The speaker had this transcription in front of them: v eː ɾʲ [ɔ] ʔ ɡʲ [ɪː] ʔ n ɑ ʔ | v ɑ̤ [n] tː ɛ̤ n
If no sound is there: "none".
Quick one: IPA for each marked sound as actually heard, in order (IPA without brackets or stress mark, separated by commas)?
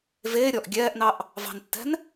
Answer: ɔ, ɛː, n